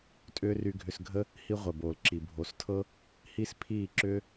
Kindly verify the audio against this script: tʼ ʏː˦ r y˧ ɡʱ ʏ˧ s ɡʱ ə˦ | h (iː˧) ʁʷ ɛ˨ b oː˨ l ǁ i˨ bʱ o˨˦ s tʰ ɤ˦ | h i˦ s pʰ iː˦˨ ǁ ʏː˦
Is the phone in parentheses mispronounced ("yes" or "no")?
yes